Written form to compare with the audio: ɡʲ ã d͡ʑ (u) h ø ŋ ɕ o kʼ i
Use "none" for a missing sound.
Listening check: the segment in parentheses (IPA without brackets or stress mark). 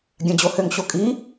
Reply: o